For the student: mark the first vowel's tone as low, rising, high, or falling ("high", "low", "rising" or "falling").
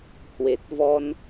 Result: low